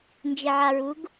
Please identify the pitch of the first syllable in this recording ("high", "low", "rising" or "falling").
low